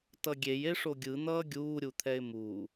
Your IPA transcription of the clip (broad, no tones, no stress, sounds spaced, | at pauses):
t ʌ ɡʲ e j e ʂ o ɡʲ ɯ n̪ ʌː ɡʲ uː ɾʲ u t̪ʰ ɛ ɪ̯ m uː